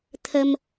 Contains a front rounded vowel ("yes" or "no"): no